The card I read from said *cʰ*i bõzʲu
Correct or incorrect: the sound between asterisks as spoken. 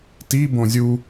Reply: incorrect: t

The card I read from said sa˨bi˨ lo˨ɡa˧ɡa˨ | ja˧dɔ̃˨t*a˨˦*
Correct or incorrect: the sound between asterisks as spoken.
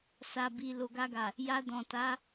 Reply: correct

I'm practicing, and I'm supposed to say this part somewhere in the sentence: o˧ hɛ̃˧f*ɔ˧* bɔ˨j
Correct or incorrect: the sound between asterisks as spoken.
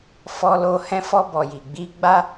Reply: correct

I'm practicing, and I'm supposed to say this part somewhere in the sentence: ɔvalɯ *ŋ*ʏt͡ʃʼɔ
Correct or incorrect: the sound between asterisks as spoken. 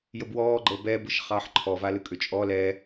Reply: incorrect: kʼ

